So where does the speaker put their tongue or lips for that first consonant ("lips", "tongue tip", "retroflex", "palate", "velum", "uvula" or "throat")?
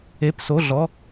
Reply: lips